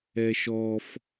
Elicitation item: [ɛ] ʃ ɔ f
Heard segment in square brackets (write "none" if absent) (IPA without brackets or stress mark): ɛ